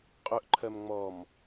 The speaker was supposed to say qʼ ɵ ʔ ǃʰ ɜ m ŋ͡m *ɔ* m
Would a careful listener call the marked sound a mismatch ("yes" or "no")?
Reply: no